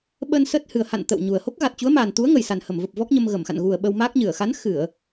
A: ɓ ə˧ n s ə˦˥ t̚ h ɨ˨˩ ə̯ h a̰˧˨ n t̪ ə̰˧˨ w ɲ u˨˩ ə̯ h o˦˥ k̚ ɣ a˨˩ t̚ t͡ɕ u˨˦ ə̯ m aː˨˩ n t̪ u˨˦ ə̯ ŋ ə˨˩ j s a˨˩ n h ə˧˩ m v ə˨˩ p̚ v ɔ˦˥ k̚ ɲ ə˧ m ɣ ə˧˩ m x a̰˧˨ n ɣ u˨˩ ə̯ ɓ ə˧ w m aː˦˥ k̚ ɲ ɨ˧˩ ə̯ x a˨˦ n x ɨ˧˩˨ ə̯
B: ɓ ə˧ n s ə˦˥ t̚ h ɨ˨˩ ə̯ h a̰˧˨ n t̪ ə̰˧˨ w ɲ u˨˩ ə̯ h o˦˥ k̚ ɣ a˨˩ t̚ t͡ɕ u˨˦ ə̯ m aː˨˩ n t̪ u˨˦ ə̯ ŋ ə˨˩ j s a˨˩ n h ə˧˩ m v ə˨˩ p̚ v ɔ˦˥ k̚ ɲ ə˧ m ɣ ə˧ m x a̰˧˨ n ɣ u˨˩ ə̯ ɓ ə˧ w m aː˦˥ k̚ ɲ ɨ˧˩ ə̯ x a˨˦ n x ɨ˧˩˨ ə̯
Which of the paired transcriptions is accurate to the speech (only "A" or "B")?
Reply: A